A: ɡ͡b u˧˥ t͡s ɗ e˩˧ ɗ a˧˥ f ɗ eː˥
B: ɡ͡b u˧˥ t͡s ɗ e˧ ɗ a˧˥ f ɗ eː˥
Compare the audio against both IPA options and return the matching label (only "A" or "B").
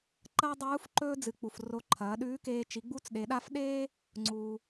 A